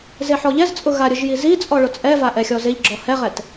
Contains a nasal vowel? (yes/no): no